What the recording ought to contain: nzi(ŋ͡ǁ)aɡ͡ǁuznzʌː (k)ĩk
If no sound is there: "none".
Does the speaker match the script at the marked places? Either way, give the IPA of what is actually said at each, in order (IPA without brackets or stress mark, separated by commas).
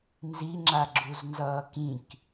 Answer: ŋ͡ǁ, k